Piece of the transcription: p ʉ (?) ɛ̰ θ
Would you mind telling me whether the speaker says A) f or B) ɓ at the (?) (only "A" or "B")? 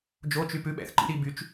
B